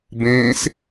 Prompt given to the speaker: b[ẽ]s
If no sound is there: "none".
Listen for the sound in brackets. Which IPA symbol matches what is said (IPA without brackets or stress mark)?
ẽ